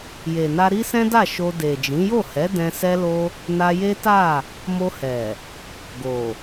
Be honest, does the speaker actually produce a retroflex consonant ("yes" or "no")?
no